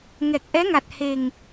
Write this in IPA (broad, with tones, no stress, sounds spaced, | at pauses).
ŋ ɛ˨˩ k̚ ʔ ɛ˧˥ ŋ a˨˩ t̚ h e˨˩ ŋ